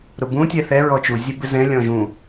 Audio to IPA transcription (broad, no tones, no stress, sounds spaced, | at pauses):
ɾ ʊ b ũ tʲ ɛ θ ɛ ɹ ɔ t͡ʃ u zʲ ɛ b ɪ z ɛ̃ lʲ ɔ̃ ʒ ũ